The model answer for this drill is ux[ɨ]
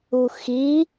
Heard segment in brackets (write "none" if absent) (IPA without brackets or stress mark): i